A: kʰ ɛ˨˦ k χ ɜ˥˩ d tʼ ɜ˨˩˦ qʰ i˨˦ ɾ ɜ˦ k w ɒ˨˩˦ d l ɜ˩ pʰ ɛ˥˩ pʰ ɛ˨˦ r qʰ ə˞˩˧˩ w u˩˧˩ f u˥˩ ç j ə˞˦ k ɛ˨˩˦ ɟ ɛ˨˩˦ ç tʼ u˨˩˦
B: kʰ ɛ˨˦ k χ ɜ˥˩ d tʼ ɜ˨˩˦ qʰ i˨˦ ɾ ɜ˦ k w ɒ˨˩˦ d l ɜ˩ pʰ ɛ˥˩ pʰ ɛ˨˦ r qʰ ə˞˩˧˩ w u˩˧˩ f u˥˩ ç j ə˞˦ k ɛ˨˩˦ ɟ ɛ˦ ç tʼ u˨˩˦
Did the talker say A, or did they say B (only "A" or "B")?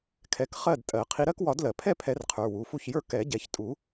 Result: A